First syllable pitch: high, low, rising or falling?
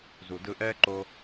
low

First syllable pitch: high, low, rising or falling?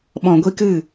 low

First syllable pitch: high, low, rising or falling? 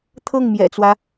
falling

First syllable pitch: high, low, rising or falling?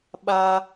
high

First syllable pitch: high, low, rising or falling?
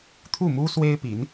falling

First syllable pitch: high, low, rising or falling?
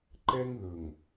high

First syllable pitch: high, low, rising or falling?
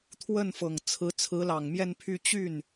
falling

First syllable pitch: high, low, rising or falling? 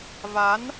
rising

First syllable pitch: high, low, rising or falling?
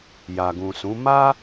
low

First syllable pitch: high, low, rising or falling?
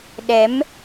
rising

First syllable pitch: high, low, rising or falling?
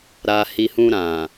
low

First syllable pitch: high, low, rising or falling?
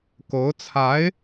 rising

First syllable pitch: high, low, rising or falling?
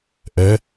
rising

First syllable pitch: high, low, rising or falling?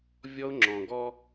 high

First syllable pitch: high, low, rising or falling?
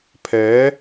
rising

